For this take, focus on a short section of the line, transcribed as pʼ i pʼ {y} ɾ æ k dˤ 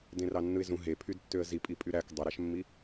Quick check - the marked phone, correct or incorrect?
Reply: correct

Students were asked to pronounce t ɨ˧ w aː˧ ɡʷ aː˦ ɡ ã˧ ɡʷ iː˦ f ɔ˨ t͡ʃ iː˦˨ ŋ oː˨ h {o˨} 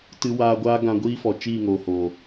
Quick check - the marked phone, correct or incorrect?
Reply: correct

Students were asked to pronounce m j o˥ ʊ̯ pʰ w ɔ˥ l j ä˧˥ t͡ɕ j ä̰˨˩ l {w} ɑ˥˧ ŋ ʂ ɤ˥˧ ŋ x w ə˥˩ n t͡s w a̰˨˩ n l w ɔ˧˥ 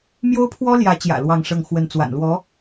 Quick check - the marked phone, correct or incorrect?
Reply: correct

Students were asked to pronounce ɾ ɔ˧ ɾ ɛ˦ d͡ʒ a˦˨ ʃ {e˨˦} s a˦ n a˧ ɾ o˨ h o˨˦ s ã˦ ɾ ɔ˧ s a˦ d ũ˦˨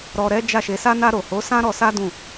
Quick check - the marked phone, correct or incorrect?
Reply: correct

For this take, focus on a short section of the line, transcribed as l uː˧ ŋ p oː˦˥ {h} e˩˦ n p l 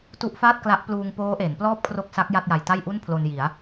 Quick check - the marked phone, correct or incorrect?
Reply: incorrect: ʔ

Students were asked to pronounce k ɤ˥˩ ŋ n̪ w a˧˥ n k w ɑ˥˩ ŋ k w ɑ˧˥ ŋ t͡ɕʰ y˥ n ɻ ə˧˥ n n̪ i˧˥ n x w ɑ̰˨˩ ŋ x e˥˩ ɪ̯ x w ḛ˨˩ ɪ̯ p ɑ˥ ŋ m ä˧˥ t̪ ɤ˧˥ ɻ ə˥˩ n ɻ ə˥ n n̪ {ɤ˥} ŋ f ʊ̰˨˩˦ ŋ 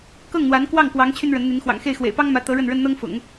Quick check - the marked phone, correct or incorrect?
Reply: correct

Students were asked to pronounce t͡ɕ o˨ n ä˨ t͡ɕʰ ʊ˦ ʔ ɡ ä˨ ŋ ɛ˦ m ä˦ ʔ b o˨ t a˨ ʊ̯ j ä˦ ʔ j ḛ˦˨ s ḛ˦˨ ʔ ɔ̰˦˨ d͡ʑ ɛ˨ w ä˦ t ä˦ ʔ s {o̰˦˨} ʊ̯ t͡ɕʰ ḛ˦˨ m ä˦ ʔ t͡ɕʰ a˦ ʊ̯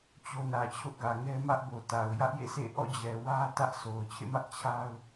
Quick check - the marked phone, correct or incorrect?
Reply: incorrect: o˨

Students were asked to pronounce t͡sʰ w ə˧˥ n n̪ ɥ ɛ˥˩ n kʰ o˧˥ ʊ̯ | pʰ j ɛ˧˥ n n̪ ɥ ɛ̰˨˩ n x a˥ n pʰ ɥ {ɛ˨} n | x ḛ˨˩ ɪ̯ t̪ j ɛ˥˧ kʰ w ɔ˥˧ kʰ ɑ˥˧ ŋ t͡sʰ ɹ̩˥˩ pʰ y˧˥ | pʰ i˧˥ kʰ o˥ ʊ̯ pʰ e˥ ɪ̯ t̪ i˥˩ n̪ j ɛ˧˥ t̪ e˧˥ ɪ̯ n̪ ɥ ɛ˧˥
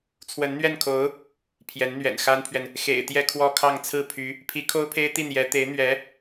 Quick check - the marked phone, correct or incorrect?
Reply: correct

